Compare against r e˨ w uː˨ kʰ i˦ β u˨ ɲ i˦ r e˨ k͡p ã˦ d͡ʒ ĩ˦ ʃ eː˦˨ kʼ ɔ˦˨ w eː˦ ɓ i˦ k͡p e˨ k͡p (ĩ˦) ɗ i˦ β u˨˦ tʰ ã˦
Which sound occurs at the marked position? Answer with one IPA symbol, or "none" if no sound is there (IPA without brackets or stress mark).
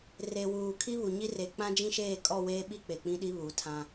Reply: ĩ˦